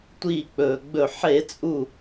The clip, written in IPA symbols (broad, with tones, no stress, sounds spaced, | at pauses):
tʷ iː˧˩ k͡p ɵː˩ ɡ͡b ɵ˧˩ ħ e˧˩˧ t͡sʼ u˧˩